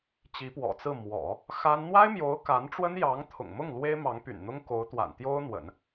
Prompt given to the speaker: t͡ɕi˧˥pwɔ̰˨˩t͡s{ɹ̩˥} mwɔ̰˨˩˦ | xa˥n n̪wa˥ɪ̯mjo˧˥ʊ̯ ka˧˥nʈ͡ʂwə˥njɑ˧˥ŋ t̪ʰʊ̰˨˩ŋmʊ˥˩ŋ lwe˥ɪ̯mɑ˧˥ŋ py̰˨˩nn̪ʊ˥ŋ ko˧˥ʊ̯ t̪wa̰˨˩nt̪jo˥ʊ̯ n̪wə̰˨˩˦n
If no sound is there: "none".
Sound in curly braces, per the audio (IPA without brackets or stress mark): ɹ̩˥˩